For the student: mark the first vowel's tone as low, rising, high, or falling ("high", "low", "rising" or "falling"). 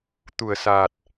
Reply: low